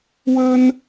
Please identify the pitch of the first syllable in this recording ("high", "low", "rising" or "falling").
high